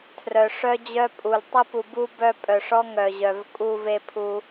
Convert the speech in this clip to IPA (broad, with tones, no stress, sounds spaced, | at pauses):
tʰ r œ˨ ʂ œ˦ d͡ʑ œ˦ pʼ u˨ l tˤ ə˦ p u˨ b u˦ b œ˦ pʼ œ˨ ʂ ɔ˦ ŋ œ˨ ʑ œ˨ v kʼ u˦ v e˦ pʰ u˦